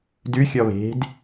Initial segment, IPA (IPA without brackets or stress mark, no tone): d